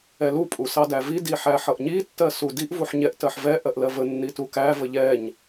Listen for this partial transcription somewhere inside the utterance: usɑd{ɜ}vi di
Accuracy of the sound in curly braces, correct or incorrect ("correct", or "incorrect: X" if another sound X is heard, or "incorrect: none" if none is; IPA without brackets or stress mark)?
incorrect: æ